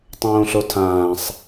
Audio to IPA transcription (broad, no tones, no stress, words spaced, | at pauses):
tˤõːɬotʰãːsˤ